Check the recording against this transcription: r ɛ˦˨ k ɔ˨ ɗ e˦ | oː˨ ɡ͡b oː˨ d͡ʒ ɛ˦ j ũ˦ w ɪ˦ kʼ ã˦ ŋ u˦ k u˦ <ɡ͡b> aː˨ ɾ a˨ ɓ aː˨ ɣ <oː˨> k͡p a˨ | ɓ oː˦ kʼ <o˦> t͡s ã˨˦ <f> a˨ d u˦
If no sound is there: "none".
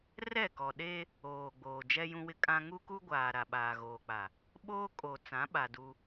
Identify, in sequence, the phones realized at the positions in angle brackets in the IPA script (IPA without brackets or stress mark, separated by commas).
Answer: ɡʷ, oː˨, o˨, ɓ